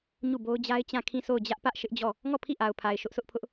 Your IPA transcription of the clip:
ɲ u˦˨ b o˦ ʊ̯ d͡ʑ a˦ ɪ̯ t͡ɕ ã˦˨ kʰ ĩ˦˨ sʰ o˦˨ ʊ̯ d͡ʑ ä˦ ʔ p ä˦ ʔ ʃ ɪ˦ ʔ d͡ʑ ɔ˦˨ | ŋ ɔ˦˨ pʰ i˦˨ ʔ a˨ ʊ̯ pʰ a˨ ɪ̯ ʃ ʊ˦ ʔ sʰ ʊ˦ ʔ pʰ ʊ˦ ʔ

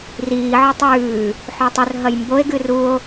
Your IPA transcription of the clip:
r iː ʕ ɵ tˤ ʉː | ħ o tˤ ɵ r ɦ ɐ j m b o e̯ ɡ ɨ r u o̯

